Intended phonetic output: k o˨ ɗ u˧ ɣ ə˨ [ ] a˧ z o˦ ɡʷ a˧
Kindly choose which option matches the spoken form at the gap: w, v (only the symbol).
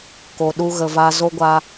v